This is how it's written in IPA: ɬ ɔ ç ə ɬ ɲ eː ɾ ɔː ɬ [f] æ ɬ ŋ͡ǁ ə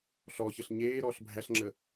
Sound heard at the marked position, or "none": bʱ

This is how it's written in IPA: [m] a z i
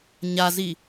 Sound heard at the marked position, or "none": ɲ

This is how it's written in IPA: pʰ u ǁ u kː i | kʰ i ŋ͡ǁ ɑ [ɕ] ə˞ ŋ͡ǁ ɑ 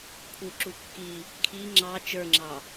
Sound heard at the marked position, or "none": t͡ʃ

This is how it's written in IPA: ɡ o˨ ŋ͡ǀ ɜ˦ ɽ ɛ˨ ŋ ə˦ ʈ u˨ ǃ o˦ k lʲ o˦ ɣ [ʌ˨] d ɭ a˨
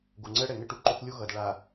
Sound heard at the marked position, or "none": ʌ˨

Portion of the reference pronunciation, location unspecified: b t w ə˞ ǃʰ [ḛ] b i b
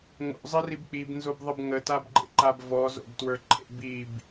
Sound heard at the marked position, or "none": ḛ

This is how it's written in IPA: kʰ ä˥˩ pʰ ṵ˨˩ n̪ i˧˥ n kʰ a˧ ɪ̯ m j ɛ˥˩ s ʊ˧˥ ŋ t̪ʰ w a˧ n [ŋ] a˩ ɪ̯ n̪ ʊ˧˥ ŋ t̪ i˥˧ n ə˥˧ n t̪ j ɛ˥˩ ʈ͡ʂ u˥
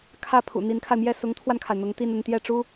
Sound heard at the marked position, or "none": kʰ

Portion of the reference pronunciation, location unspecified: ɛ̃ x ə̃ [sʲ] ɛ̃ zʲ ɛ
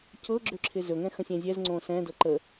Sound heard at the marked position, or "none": sʲ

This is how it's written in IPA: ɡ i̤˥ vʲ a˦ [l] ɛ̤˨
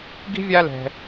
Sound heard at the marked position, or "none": l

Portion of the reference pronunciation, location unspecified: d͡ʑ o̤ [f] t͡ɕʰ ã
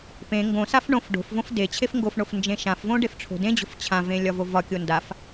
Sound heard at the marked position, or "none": f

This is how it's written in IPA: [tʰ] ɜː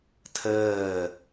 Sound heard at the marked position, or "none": tʰ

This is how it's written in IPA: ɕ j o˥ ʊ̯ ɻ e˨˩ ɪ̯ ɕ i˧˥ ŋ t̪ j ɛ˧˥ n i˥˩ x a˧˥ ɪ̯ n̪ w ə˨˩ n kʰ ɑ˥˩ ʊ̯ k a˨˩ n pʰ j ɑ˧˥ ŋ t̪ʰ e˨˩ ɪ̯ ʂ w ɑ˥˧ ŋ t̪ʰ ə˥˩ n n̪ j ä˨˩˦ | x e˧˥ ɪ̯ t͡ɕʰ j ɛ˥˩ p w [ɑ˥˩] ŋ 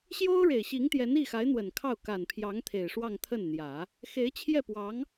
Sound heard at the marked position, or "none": ɑ˧˥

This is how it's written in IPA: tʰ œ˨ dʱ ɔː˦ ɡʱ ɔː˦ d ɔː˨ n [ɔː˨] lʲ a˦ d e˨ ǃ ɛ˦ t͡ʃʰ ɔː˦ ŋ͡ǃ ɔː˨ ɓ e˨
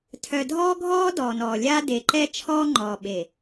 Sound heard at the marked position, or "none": ɔː˨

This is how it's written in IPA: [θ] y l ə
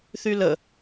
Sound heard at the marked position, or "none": θ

